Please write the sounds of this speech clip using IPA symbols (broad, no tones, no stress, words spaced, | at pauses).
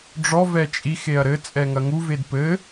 ɖ͡ʐɔ vɛt͡ʃʼix eɐ̯ɾɘ t͡sʼɛŋɐŋu vedpɘ